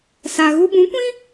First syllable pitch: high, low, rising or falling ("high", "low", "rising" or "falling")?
low